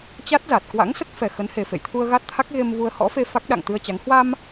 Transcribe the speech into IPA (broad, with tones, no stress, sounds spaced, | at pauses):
t͡ɕ a˦˥ t̚ z a˨˩ t̚ k w a̰˧˥ ŋ s ə˦˥ t̚ f ɛ˨˩ x ə˨˦ n h e˨˩ f ḛ˧˨ j t̪ʰ u˧ ə̯ ɣ a˦˥ t̚ t̪ʰ a˦˥ k̚ ɣ e˧ m v u˧ ə̯ h ɔ̰˧˥ f e˧ f a˦˥ k̚ ɗ a̰˧˨ ŋ t̪ ɨ˧ ə̯ t͡ɕ a˨˦ ŋ h w a˧ m